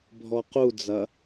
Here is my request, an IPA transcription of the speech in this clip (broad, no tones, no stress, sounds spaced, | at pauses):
bʱ ɔ q u d͡z ɐ